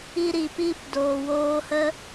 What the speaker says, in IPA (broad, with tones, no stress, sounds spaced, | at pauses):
i˧ ɾ i˨ p iː˧ p d oː˨ w oː˧ h ə˦